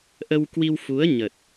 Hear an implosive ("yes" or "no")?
no